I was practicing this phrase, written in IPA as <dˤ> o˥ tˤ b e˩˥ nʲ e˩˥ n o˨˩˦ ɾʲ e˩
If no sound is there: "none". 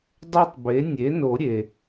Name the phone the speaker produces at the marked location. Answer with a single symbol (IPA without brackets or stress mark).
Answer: dˤ